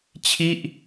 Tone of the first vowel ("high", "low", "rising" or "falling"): falling